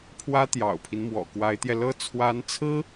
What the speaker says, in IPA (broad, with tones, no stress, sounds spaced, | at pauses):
pʰ w ä˥ t̪ j ɑ̰˨˩ ʊ̯ pʰ i˦ n m w ɔ̰˨˩ k w a˧˥ ɪ̯ t̪ j ɛ˧ l ɤ˥˩ t͡sʰ w a˧˥ n t͡sʰ ɹ̩˥